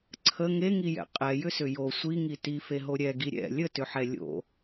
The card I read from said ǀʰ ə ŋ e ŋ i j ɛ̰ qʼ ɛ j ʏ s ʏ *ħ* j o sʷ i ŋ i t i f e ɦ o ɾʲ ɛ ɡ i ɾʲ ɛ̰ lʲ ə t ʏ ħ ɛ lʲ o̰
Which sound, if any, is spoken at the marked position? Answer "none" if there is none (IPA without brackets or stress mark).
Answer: none